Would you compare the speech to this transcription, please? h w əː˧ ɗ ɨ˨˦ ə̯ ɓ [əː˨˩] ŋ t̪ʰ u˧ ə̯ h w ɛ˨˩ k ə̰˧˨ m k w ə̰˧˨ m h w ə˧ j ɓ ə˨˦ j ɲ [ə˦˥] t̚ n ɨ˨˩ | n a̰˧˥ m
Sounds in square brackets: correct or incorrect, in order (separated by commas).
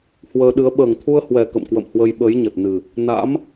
correct, incorrect